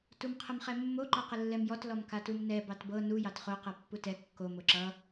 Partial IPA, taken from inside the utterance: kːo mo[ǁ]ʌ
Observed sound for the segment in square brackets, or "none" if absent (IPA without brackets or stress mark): ǁ